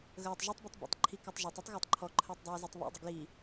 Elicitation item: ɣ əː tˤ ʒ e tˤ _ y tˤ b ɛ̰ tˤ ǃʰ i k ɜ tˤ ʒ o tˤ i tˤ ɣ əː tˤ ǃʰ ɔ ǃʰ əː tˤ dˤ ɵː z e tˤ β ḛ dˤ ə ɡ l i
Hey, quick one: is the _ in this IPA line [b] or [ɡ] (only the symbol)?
b